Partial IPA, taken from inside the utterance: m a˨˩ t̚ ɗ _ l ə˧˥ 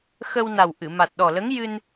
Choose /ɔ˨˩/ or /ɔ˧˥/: ɔ˨˩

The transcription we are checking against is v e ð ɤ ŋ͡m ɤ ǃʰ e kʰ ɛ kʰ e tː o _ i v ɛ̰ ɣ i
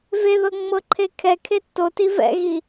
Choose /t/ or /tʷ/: t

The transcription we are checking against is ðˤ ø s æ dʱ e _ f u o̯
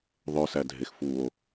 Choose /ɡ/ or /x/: x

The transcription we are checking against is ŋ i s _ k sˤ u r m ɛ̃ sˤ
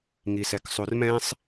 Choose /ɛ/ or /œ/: ɛ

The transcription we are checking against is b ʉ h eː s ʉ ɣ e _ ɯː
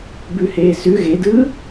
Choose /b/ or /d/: d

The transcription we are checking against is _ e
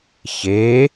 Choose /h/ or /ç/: ç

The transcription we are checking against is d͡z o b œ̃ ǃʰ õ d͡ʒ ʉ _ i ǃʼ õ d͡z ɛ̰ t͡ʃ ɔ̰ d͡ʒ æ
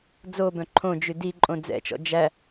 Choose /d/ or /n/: d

